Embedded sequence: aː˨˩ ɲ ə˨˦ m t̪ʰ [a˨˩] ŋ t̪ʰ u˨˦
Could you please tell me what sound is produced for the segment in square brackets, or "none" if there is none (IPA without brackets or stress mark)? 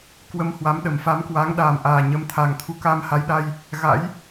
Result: a˨˩